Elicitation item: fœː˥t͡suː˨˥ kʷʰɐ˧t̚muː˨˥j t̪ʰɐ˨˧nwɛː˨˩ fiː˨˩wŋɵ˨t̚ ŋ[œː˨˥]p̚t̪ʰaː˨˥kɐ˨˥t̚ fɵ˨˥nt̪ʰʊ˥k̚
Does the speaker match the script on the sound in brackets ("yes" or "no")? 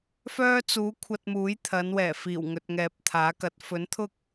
no